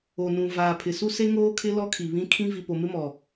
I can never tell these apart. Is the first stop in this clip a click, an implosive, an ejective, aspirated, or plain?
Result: aspirated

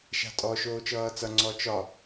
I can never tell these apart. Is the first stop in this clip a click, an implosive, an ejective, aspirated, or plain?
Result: ejective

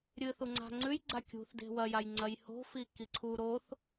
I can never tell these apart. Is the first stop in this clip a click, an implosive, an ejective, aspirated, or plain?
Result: click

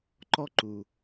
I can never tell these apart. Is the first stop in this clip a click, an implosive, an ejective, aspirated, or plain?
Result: click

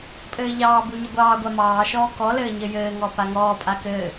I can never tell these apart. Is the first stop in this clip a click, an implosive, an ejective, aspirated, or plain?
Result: ejective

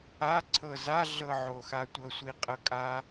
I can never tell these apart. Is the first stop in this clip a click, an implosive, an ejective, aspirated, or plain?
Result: click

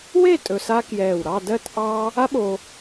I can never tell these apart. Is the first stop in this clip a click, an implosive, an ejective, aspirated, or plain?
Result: ejective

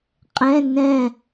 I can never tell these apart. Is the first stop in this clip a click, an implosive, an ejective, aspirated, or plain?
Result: ejective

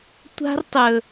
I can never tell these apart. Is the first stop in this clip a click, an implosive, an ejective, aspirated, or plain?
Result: plain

